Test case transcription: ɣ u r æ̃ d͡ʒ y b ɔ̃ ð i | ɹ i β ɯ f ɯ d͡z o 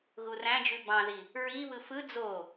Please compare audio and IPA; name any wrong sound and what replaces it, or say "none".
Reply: ɔ̃ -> ɑ̃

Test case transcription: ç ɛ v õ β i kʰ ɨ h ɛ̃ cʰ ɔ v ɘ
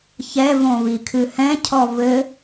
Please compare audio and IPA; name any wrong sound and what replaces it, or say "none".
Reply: none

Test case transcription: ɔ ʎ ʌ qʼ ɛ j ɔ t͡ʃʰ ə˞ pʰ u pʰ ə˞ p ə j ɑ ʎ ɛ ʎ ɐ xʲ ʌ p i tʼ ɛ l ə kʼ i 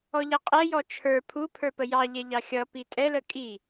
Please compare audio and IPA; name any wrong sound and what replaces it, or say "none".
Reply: ɐ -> ɑ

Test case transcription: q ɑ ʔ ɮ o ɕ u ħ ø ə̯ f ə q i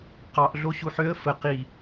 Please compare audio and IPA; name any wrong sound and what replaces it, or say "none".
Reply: none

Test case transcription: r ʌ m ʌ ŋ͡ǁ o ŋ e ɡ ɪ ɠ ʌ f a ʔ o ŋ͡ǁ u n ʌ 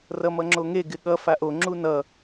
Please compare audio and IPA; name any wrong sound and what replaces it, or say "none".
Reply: none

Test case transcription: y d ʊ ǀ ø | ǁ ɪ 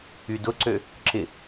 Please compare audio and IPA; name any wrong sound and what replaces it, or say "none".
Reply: none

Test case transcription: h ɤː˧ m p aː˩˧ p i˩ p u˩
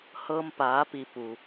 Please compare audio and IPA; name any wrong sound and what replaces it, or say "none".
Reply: none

